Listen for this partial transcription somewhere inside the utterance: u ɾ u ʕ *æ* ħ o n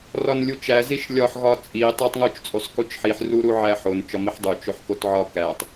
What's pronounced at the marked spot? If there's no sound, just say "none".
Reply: æ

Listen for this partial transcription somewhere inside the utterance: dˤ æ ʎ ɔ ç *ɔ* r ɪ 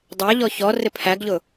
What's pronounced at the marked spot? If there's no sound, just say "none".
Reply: ɔ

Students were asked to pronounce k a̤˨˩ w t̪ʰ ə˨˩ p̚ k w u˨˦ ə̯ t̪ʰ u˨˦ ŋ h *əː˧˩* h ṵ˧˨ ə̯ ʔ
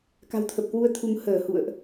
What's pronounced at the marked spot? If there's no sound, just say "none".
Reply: əː˧˩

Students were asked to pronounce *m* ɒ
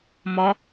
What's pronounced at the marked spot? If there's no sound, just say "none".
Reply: m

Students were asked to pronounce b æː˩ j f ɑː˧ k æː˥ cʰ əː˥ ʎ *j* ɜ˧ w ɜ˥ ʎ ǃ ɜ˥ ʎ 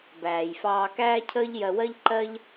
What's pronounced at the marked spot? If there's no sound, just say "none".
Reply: j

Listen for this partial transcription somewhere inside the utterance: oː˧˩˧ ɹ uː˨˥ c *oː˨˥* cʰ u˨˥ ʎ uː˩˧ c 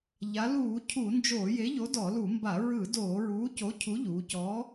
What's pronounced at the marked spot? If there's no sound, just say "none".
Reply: o˨˥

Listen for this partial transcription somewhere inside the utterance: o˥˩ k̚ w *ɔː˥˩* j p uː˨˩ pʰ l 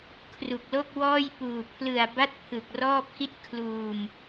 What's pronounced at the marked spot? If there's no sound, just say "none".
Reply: ɔː˥˩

